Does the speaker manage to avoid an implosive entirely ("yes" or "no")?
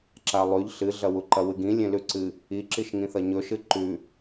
yes